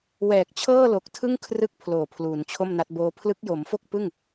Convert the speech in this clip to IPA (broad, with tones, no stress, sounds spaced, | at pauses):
w ɛː˨˩ k̚ t͡ɕʰ ɤː˥˩ l o˨˩ k̚ tʰ ɯ˥˩ ŋ kʰ r ɯ˦˥ k̚ pʰ l oː˨˩ pʰ l uː˩˦ n t͡ɕʰ o˥˩ m n a˦˥ t̚ b oː˧ pʰ l ɯ˦˥ k̚ j o˩˦ m f o˥˩ k̚ p ɯ˥˩ ŋ